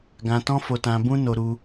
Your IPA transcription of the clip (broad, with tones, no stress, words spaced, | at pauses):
ɡã˧tɔ̃˦fo˧tã˧ bũ˦no˧ɾu˧